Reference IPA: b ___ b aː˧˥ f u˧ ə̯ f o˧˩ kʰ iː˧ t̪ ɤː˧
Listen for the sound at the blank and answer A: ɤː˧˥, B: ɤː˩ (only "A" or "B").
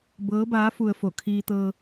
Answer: A